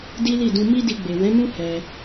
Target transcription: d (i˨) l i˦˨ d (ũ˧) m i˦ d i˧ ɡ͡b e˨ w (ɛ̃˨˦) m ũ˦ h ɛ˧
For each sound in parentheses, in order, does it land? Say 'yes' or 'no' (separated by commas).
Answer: no, yes, yes